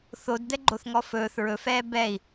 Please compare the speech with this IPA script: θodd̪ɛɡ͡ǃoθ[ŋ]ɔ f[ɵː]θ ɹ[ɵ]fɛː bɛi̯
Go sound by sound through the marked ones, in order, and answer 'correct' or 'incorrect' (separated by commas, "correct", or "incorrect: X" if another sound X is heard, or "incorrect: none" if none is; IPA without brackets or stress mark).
correct, correct, correct